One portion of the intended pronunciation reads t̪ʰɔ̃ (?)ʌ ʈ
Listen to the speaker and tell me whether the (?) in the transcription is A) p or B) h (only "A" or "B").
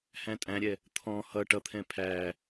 B